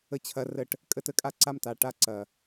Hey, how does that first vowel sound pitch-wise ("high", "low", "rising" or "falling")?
falling